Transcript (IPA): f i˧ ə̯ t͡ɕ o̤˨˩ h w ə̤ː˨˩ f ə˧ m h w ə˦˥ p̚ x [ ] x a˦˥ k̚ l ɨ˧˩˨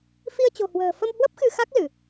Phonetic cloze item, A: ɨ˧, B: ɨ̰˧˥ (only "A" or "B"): A